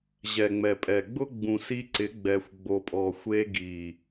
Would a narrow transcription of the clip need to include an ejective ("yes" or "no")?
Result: yes